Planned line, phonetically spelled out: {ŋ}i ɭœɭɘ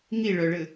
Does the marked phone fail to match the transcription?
no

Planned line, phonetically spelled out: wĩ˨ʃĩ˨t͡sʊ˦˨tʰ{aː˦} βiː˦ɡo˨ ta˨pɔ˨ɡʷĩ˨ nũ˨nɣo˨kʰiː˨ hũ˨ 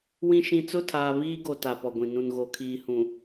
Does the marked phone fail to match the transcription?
yes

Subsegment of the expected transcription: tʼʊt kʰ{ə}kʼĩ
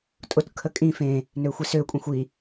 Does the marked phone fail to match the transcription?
no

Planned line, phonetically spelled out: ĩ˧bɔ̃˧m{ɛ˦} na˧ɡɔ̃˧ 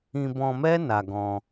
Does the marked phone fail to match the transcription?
no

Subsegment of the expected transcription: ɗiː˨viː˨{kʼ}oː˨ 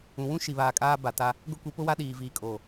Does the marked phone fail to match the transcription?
no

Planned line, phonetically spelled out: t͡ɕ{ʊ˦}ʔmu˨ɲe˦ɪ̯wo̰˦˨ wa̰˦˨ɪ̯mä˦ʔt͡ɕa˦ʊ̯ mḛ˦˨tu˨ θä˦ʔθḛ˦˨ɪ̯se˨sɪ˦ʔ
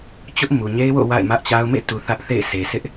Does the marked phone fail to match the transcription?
no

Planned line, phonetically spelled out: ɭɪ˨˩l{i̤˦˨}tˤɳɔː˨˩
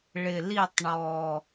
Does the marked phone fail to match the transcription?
yes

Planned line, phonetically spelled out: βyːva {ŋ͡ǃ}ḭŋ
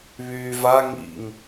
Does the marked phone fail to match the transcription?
yes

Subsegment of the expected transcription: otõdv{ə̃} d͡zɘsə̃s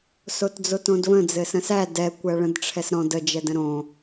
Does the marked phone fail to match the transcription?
no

